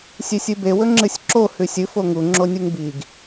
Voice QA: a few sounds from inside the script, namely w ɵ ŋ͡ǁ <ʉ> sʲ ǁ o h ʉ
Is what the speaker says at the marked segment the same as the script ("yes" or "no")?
no